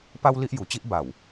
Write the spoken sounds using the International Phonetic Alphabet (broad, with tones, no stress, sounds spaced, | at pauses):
p a˦ w l i˦ ʔ j u˨˩ t͡ɕ i˦ ʔ b a˨˩ w